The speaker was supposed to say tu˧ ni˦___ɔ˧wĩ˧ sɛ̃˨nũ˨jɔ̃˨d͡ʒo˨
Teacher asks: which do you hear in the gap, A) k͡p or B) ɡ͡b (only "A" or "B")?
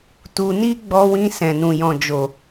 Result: B